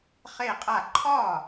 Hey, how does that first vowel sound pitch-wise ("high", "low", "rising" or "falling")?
falling